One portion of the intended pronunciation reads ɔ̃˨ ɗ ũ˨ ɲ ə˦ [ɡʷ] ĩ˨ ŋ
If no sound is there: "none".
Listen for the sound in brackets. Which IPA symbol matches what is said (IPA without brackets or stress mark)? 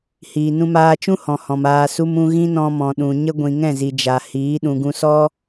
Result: ɡʷ